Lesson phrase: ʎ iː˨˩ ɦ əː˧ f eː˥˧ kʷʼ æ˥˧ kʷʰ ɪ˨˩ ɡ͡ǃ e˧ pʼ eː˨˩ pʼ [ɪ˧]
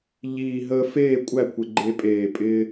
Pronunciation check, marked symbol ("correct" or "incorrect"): incorrect